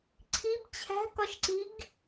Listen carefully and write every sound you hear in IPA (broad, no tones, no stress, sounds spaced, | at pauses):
ǀʰ i b t͡ɕʰ æ̤ k ɒ ʃ ǀ i ɡ